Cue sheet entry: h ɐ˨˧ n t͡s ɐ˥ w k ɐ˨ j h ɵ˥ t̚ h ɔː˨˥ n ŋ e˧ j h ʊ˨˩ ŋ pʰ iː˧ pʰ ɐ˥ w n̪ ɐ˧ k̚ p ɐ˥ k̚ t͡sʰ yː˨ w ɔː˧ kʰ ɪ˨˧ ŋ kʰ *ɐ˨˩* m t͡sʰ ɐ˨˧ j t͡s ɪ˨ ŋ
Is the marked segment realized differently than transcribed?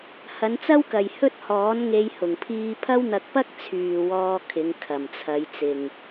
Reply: no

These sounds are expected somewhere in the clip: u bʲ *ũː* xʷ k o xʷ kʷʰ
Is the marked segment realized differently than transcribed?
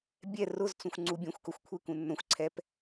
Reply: yes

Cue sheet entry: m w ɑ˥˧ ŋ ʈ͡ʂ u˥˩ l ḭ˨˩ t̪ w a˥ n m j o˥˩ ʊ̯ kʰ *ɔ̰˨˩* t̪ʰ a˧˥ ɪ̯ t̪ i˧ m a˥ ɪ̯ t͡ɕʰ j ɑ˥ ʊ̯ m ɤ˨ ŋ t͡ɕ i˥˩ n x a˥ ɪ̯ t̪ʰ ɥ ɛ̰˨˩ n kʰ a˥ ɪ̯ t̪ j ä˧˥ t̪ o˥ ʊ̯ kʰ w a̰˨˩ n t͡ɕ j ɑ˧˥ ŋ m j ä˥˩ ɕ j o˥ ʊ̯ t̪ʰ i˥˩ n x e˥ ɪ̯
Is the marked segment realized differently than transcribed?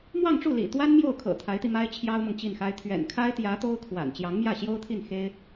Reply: yes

